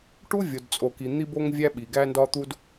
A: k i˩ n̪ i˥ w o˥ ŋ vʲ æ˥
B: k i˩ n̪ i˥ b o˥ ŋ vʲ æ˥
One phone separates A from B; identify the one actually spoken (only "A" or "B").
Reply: B